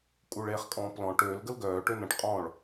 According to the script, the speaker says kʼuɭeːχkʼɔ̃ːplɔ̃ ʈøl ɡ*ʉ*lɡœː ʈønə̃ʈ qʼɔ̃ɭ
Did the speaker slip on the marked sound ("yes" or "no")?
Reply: yes